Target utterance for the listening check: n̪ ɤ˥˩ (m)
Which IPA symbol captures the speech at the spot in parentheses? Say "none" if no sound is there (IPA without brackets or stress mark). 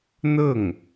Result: ŋ